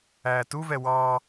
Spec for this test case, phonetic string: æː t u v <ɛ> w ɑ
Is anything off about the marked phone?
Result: no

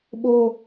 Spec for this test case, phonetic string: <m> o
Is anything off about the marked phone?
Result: yes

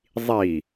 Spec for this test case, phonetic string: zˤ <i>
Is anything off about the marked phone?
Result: no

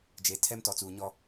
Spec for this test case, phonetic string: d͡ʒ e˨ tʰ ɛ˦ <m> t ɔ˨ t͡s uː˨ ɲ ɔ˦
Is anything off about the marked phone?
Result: no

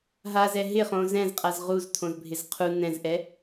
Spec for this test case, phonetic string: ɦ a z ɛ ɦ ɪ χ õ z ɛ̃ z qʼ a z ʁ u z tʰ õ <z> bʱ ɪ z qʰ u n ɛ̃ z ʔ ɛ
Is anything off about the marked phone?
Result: no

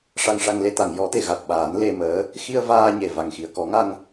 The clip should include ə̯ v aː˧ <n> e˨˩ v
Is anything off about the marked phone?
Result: yes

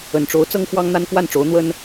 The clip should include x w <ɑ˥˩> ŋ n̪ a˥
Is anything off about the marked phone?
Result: yes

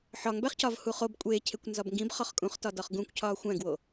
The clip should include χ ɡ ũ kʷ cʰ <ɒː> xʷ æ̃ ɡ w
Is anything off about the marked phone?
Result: no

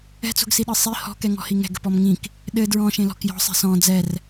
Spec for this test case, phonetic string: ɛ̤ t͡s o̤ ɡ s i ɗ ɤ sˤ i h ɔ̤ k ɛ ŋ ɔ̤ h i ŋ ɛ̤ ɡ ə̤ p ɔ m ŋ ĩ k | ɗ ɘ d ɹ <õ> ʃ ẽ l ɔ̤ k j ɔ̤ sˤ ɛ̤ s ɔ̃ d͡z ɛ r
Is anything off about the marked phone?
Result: yes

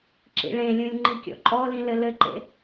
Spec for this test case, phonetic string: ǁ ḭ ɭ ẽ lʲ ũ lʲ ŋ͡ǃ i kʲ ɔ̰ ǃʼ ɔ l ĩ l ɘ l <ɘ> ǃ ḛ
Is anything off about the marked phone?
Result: no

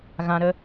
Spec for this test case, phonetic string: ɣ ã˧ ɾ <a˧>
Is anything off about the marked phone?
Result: yes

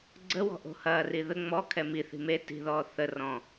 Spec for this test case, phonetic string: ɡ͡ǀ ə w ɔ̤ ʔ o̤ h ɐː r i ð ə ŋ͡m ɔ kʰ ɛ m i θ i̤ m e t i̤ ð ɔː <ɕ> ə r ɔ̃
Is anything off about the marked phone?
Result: yes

